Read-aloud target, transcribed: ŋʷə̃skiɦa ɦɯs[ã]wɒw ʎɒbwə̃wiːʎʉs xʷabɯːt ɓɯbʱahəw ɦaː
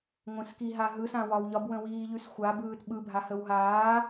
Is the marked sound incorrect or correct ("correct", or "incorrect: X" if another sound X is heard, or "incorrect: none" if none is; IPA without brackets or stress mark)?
correct